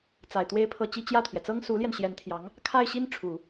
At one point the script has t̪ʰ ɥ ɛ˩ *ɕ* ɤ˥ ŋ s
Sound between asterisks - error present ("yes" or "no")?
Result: yes